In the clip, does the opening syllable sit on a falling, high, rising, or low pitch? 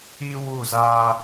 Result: high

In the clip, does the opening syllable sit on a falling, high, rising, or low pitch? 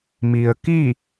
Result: low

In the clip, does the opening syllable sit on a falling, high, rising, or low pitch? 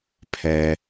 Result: low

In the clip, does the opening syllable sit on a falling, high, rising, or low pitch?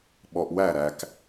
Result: low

